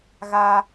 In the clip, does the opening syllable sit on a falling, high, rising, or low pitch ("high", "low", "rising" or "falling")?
high